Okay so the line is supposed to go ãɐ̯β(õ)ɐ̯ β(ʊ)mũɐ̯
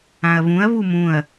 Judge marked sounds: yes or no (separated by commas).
no, no